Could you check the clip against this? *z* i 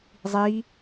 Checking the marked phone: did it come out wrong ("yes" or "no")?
yes